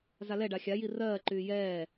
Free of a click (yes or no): no